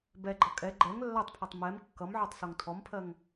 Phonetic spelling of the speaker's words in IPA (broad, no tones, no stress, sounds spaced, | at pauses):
b ɛ ɡ͡ǃ ʌ kʼ ɛ ɡ͡ǃ ɛ ŋ lː a tˤ pʰ a tˤ m ɛ m kː ʌ m ʕ ɔ tˤ s o ŋ tʰ ɔ m pʰ ɜ ŋ